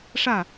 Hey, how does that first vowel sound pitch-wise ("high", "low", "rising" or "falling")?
falling